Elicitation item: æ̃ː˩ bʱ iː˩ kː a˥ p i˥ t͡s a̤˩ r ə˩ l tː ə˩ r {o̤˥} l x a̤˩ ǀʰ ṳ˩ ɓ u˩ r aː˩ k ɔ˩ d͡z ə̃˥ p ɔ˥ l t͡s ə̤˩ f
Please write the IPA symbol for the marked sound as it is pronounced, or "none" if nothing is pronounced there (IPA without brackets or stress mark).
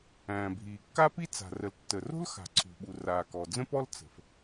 o̤˥